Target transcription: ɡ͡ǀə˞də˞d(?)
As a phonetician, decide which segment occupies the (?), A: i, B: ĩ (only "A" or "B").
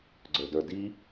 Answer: A